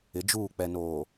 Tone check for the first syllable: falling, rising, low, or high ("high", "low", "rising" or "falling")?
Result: rising